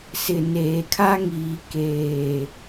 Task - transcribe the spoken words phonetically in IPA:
sɪ˨neː˨ kʰa˦ŋiː˨ keː˨

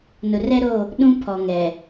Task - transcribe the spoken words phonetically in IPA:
nʊ˨rɛ˦ɾo˦˨ | ɗũ˦ pʰɔ˨ŋɛ˨

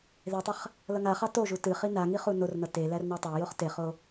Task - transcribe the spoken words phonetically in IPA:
ðetˤəχ | lʌŋaχɑ toʒu tɨχi na ŋiχunornʌ te lærnɑtˤæjoχ teχo

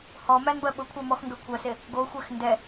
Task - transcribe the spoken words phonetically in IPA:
hɔmænbɜ ɓʊkʷʰɜmɔxŋɡɜ kʷʰɜse | ɡoxʷɛx ndɛ

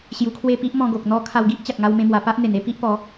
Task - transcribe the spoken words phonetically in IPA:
ɕju˧kʰwe˥˧ pi˦ʔmɔ̃˧ɡo˨k̚ n̪ɔ˧ kʰa˧wɡi˦ʔ t͡ɕa˨k̚ŋa˧wmẽ˧mwa˨˩ pa˦ʔ n̪e˨˩ne˥˧ pi˦ʔpɔ˨˦

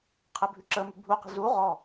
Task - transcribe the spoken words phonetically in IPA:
qʰɘbʱʉǁəmʉ bʱuqi̤ zu ʁɔ

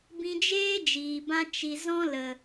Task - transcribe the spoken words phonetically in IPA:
bĩ˧d͡ʒeː˦ d͡ʒiː˨bã˧ t͡ʃi˨ zɔ̃˦lə˨

